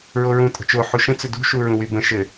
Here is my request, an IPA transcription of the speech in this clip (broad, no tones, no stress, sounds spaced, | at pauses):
ɹ o ɹ ũ tʼ ə̤ t͡ʃ o ħ u ʃ ə̃ t͡s ɵ d ṳ ʃ u ɹ ũ w y b ə̃ ʃ ɘ